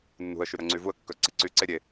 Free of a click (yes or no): no